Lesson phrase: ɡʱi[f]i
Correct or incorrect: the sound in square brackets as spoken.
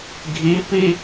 incorrect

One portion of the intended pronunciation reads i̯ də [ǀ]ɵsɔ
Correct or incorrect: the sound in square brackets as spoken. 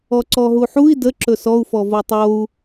incorrect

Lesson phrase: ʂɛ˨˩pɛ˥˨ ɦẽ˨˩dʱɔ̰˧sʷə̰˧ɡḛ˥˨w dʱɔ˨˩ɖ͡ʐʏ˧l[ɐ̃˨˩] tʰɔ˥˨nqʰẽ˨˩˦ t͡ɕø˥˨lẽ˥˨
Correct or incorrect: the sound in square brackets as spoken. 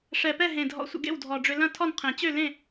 incorrect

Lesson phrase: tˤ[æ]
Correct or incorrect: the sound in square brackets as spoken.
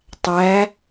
correct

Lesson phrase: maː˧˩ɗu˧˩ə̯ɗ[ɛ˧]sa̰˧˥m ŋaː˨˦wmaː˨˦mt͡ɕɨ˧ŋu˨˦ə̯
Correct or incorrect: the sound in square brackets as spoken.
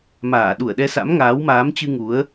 correct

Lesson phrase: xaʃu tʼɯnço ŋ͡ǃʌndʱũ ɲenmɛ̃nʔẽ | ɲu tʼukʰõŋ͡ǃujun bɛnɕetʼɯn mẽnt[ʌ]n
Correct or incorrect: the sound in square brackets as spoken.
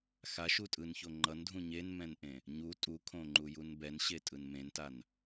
incorrect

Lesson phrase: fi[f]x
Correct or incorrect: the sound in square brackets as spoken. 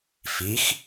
incorrect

